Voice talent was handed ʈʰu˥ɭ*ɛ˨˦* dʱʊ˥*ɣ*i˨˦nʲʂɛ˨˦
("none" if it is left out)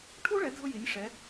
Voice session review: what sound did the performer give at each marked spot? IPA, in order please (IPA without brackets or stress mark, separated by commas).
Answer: ɛ˨˦, j